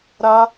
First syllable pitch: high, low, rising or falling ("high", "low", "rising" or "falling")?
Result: high